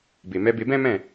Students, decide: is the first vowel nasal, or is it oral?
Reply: oral